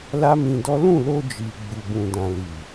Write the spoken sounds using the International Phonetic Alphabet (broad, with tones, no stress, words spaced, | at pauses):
la˦mĩ˧dɔ˦ lũ˦˨lo˧d͡ʒi˨ ɡ͡bu˨bũ˨dã˨ li˨